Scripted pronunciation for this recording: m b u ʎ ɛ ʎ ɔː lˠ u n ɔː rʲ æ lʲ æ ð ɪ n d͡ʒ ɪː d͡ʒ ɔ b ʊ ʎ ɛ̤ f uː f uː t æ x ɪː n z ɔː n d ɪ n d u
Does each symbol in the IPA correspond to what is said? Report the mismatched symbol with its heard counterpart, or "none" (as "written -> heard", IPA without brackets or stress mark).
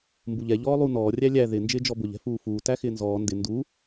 none